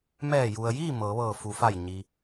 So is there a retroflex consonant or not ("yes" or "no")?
no